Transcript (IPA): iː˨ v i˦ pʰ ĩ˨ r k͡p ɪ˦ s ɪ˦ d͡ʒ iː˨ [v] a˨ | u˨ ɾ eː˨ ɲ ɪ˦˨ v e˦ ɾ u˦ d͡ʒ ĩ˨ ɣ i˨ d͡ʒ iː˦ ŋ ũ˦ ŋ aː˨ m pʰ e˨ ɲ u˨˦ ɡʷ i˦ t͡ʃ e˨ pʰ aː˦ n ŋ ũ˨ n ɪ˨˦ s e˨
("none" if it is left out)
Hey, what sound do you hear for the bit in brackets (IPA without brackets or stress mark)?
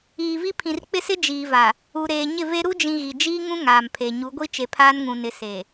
v